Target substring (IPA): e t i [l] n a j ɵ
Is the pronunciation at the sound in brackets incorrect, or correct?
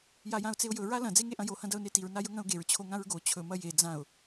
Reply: incorrect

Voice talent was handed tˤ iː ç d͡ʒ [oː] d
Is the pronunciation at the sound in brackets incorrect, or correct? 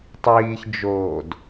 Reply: correct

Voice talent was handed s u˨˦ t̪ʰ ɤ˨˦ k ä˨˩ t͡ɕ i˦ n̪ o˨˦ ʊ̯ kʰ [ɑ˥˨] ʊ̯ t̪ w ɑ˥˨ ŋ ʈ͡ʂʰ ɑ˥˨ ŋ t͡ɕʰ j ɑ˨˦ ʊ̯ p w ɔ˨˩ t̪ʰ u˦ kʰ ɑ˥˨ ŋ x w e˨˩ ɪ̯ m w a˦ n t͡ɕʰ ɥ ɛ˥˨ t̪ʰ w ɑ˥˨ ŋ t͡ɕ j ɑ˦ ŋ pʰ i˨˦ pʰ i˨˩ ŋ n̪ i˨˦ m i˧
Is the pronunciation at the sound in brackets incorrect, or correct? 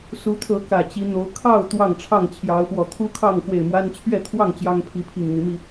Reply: correct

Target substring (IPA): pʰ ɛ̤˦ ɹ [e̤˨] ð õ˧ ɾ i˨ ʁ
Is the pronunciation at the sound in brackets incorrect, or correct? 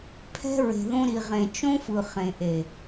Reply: correct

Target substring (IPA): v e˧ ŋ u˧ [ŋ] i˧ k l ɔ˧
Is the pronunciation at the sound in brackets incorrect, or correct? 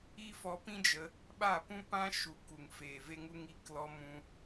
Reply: correct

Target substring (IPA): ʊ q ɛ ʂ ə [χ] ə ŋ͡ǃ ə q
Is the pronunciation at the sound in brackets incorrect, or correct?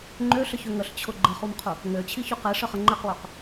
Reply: correct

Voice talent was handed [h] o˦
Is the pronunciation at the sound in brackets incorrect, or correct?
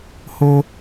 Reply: correct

